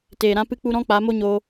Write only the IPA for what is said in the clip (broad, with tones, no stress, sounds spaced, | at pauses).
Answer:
t eː˨ ɾ ã˧ p ɨ˧ k͡p u˧ ɾ ɔ̃˦ k͡p a˨˦ m o˦ ɲ o˧